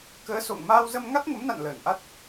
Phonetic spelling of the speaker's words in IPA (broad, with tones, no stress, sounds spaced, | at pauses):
k əː˨˦ s o̰˧˨ ŋ m aː˧ w z ə˧ m ŋ a˦˥ t̚ ŋ ə˨˦ m n a̰˧˨ n l əː˧˩ n ʔ a˦˥ t̚